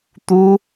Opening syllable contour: high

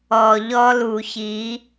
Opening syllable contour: low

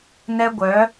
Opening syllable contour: high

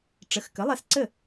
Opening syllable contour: rising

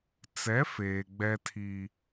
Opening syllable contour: rising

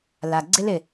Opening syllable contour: low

